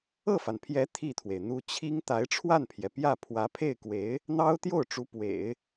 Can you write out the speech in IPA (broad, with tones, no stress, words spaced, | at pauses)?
ɤ˥˩fa˩npʰjɛ˧˥ t̪ʰi˥˩t̪ʰwe˩ɪ̯n̪u˥ t͡ɕʰi˥ŋ t̪a˧˥ɪ̯ʈ͡ʂʰwa˥˩npʰjɛ˩ pjä˥˩ pʰwä˧˥pʰe˥˩ɪ̯kwe˧˥ɪ̯ | n̪ɑ˥ʊ̯t̪jo˥˩ʊ̯ ʈ͡ʂu˧˥pwḛ˨˩˦ɪ̯